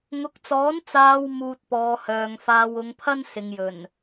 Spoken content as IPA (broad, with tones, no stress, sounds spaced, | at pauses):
ŋ ʊ˨˥ k̚ t͡s ɔː˨˥ n t͡s aː˨ w m uː˧ t̚ p ɔː˨˧ h œː˨ ŋ f aː˧ w ʊ˨˧ ŋ pʰ ɐ˥ n s ɪ˨ ŋ j ɵ˨˩ n